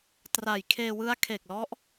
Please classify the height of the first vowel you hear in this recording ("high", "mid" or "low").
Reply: low